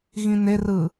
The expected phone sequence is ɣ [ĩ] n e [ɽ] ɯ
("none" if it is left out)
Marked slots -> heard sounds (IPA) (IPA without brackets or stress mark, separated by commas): ĩ, r